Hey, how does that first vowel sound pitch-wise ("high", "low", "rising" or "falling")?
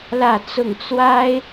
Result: falling